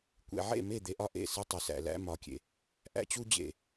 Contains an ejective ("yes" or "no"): no